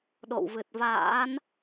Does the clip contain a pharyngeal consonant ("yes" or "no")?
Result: no